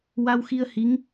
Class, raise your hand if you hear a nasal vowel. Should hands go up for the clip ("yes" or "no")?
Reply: no